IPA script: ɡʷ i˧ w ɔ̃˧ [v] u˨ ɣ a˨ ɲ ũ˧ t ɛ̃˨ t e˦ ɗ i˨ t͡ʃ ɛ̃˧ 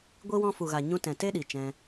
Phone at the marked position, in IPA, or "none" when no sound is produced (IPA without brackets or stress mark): f